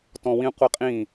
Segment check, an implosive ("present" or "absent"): absent